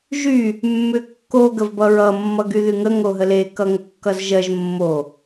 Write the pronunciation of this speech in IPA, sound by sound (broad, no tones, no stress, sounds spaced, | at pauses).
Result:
ʒ y | mː ʏ kː o ɡ ə v b ʌ ɹ ʌ mː ʌ ɡ y ð y ŋ ə ŋ o ɦ ə l e k ʌ ŋ ə kː ʌ z ʒ ɜ ʒ mː o